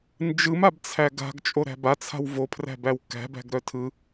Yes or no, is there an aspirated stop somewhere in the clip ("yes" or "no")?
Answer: yes